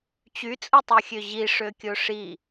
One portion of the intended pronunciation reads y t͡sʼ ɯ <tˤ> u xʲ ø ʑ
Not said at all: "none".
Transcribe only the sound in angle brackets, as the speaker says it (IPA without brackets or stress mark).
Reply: tˤ